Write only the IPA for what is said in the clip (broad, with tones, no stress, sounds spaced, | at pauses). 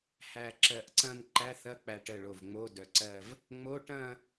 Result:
h æ˧˩ ǁ ɜ˧˩ ʔ ǀ ɐ̃˥˧ n ǃ æ˧˥˧ θ ɐ˧˥˧ k͡p æ˧˩ ʈ ə˧˩ ɭ o˧˩ v ŋ͡m o˧˥˧ d œ˧˩ ǀ ɜ˥˧ v | ŋ͡m o˧˥˧ ʈ ɐ̃˥˧